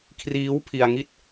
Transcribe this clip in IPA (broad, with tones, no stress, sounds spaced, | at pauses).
kʰ r iː˦˥ w pʰ i˧ a̯ ŋ i˥˩ t̚